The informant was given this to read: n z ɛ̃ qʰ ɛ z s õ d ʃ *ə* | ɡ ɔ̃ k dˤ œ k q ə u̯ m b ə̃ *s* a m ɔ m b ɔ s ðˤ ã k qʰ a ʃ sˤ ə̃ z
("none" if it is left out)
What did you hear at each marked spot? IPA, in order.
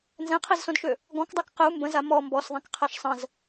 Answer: ø, z

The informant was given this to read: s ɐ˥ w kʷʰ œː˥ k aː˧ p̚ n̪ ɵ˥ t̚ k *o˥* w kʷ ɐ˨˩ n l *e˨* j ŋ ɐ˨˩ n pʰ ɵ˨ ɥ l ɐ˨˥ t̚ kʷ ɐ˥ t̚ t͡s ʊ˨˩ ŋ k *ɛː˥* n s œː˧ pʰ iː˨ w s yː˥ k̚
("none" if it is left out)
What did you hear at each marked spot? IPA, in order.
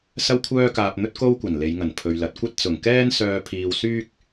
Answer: o˥, e˨˧, ɛː˥

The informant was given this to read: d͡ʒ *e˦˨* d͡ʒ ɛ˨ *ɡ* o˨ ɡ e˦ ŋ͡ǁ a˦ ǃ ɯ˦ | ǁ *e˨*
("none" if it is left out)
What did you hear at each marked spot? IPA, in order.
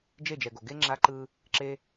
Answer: e˦˨, ɡ, e˦

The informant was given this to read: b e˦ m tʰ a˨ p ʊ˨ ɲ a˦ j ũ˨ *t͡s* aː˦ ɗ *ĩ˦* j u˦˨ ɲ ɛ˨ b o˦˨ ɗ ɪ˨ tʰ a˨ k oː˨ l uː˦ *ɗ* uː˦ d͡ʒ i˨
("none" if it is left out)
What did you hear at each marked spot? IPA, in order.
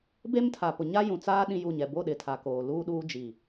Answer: t͡s, ĩ˦, ɗ

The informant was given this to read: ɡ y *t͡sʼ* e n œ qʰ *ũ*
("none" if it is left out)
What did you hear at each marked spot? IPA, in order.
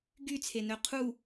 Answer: t͡sʰ, u

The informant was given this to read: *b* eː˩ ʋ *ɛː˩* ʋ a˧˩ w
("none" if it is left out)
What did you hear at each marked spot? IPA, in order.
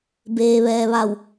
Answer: b, ɛː˩

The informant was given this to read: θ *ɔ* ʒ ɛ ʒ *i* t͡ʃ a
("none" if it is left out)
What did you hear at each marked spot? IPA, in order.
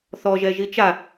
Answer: ɔ, i

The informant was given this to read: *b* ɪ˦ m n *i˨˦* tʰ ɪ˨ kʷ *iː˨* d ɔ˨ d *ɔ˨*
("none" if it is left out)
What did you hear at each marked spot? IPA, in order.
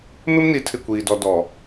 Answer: m, i˨˦, iː˨, ɔ˨

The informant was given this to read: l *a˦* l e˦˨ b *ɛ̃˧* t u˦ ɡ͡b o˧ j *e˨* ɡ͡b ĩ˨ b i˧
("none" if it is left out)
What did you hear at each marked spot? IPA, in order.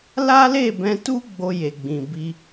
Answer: a˦, ɛ̃˧, e˨

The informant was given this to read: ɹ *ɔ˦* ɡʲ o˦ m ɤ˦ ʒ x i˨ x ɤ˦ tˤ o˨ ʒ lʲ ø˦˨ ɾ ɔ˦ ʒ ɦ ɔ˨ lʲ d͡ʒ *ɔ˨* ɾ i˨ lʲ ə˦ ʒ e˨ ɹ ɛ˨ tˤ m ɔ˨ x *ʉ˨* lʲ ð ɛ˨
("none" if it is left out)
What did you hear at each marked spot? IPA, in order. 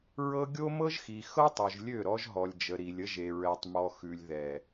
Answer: ɤ˦, ə˨, ʉ˨

